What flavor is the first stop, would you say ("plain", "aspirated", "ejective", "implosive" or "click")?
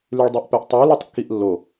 plain